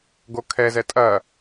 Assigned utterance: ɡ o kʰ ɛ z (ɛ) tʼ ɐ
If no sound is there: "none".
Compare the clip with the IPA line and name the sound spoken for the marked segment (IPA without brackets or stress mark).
ɛ